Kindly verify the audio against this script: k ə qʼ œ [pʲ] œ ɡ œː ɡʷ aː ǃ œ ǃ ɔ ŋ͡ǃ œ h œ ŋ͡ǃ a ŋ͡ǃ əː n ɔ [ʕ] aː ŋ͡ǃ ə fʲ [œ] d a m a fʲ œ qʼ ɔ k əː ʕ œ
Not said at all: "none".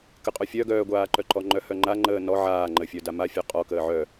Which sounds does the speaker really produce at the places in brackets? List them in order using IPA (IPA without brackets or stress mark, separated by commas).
fʲ, ʕ, œ